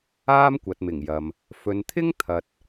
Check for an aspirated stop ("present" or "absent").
present